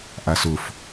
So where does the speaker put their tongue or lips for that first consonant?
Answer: throat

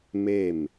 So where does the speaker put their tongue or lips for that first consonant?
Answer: lips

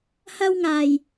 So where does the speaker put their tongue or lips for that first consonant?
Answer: throat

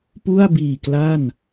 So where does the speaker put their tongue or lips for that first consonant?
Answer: lips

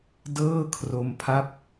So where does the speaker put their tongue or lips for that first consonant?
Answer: tongue tip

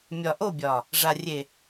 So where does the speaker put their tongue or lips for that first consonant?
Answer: lips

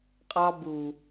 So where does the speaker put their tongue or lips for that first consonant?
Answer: uvula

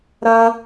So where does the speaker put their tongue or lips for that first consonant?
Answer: tongue tip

